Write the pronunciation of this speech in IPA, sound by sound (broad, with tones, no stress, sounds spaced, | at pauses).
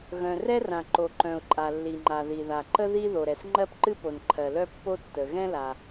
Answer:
ɣ œ̃˩ r ɛ˥ r ã˩ ǃ o˩ ǃ œ̃˩ ʊ̯ ǃʼ a˩ lː i˩ ŋ͡ǃ a˩ ð i˩ ð a˩ ǃ ə˥ ð i˥ ð o˩ ɾ ɛ˩ s ŋ͡ǃ ɜ˥ p ǃ ɨ˥ p o˩ n ǃʰ ɜ˩ l œ˥ pː o˥ tː ə˩ ɣ ɛ̃˥ l a˩